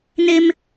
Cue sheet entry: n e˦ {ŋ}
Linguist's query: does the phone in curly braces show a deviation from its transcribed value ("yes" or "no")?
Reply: yes